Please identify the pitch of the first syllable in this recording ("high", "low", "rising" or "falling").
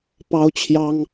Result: high